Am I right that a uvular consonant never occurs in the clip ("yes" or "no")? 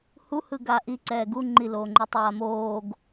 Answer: yes